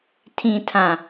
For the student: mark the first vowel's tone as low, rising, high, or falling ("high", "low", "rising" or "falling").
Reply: low